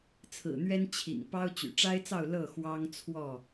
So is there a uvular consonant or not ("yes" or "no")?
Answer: no